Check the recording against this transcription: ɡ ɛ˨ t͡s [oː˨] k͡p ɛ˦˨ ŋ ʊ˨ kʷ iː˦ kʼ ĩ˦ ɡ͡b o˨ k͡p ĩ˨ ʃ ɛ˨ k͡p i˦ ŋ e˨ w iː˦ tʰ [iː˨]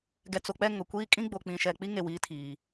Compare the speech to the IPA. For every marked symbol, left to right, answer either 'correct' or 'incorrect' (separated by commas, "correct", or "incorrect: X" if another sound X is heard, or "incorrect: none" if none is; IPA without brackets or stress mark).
incorrect: o˨, correct